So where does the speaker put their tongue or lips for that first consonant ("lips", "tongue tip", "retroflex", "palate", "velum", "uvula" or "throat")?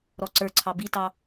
tongue tip